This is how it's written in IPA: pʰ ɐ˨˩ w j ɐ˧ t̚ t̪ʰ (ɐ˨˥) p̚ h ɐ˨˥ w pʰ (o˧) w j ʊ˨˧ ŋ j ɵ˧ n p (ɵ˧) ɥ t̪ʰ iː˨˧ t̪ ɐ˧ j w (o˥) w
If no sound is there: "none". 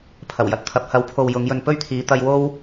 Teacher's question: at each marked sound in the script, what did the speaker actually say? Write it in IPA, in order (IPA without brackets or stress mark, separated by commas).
ɐ˨˥, o˨, ɵ˥, o˥